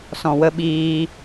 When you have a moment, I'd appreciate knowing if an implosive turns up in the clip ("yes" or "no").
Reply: yes